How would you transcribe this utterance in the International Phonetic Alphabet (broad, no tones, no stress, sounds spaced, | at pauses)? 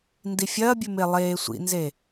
n d i fʲ ɐː bʲ ʉ m e lˠ eː sʷ ḭ n z e